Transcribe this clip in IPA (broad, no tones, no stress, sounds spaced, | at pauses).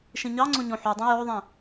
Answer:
ʃ ĩ ɲ ɑ ŋ͡ǀ õ ɲ õ ħ u dˤ ĩ j o ðˤ ĩ